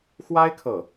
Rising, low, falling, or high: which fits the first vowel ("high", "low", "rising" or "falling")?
high